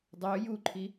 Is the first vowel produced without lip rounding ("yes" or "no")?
no